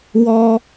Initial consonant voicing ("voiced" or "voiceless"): voiced